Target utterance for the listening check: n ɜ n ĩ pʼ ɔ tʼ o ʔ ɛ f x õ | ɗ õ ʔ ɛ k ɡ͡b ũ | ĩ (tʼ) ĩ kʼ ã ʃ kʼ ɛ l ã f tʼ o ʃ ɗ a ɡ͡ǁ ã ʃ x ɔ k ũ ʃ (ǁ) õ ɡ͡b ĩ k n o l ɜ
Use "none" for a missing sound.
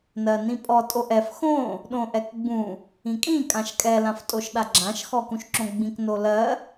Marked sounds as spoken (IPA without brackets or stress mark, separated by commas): kʼ, ǁ